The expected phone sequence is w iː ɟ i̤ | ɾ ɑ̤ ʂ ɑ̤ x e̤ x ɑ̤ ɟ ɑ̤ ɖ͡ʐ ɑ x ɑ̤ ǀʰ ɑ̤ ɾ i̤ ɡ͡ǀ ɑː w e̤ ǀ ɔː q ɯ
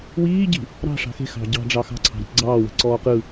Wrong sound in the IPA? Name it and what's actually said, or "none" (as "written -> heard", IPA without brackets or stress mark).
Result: none